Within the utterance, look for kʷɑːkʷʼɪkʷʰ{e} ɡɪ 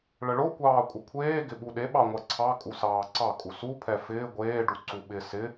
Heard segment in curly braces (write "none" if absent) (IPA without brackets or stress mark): eː